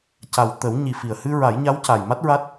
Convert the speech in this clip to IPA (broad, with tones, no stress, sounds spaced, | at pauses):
c a˨˩ w t̪ ə˨˩˦ w ɲ i˨˩ f i˨˩ ə̯ h ɨ˧ ɹ a˨˩˦ j ɲ a˧˥ w c a˨˩ j m a˦˥ t̚ ɹ a˦˥ t̚